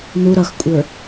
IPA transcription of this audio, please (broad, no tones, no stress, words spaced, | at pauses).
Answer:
nu ɾʌxkʷʼə˞